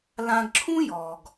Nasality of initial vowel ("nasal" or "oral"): nasal